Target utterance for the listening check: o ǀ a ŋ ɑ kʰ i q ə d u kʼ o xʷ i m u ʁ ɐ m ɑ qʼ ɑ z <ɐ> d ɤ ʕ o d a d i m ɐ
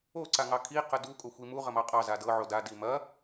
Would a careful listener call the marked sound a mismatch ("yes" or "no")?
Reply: yes